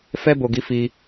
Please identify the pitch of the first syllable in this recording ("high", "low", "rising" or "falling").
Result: high